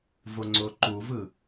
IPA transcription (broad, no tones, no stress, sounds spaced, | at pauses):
v o ŋ͡ǀ o ǃ u v ɯ